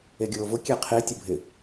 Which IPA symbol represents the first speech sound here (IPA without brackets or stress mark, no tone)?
e